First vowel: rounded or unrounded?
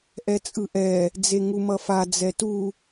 unrounded